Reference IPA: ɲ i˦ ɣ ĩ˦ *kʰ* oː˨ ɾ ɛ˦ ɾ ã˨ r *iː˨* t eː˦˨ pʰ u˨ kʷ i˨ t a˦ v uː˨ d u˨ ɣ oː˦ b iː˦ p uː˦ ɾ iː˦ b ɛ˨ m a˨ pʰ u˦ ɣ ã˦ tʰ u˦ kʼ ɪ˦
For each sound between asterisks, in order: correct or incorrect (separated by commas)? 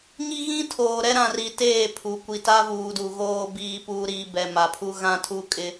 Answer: incorrect, incorrect